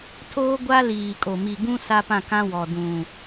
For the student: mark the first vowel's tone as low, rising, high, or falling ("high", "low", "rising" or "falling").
high